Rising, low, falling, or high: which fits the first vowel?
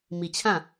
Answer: low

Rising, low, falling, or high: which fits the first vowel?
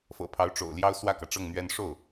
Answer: low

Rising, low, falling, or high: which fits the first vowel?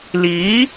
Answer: rising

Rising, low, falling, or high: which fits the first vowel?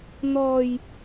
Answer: low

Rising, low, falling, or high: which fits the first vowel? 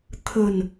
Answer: low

